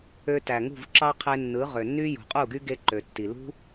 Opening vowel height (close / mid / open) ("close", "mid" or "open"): mid